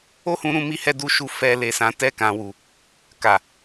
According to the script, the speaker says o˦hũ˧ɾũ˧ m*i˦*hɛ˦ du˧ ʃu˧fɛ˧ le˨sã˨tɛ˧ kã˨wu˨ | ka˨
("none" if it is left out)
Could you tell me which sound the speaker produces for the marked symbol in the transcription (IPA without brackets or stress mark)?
i˦